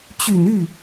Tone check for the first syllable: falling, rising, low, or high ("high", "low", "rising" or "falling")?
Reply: low